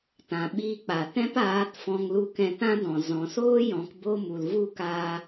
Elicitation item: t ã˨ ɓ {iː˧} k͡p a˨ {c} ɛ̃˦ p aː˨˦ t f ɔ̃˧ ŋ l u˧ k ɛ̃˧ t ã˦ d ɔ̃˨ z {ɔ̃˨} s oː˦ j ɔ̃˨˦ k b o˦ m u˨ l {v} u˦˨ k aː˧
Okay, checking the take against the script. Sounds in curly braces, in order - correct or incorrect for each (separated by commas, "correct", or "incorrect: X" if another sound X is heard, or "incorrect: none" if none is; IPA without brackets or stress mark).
correct, incorrect: t, correct, correct